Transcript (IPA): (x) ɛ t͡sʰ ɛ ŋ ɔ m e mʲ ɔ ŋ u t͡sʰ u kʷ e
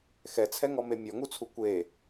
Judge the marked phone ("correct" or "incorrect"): correct